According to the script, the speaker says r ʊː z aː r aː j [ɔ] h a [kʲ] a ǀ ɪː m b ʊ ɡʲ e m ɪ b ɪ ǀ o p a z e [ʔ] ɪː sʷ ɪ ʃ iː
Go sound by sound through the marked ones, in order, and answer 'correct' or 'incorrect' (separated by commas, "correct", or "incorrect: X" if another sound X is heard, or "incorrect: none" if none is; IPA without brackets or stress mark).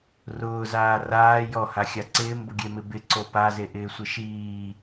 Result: correct, incorrect: xʲ, correct